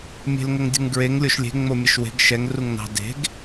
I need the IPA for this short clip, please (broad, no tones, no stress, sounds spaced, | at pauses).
mʲ e̤ l ŋ ə ŋ dʲ ə̤ ŋ ɡ ɹ e ŋ lʲ o ʃ lʲ e̤ ŋ͡m o mʲ ə ʃ w e̤ ɡ ʃ ɛ ŋ r u ŋ n ɑ̤ d e̤ ɡ